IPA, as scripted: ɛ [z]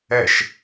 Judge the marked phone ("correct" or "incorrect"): incorrect